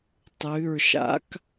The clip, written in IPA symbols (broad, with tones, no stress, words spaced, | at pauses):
tˤʉ˩˧˩ɹʃa̰˦˥k